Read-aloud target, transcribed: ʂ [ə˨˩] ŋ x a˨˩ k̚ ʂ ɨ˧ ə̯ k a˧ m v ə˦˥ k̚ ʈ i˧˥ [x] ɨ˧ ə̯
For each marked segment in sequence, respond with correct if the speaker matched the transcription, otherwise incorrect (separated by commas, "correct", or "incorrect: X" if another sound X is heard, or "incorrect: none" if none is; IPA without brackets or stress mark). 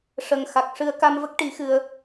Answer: correct, correct